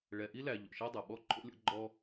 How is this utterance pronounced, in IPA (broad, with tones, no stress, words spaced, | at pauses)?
ɭɛ˨ʔi˥læ˨ ʎo̰˩ʃa˦ dˤa˩ɓɔ˥ ǃʰo̰˦lʲɔ̰˦ɡ͡ǃɔ˦